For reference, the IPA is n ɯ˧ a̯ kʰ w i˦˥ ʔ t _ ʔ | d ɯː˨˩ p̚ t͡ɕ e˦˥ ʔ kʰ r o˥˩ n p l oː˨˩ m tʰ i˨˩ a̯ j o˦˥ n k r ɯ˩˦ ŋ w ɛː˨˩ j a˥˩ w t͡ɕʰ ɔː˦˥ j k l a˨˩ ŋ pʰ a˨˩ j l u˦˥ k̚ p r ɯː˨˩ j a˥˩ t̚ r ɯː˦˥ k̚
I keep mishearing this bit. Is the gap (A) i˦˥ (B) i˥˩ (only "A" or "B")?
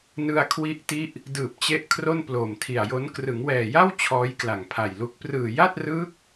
A